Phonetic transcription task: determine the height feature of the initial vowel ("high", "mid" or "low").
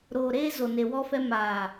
mid